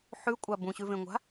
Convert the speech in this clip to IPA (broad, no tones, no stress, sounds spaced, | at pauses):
ħ ʉ kʷʼ a b ũ ɕ ʉ v ẽ ŋʷ a̤